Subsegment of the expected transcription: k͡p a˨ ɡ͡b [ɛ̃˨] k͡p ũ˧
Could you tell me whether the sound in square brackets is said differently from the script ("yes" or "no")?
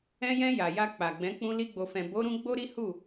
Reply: yes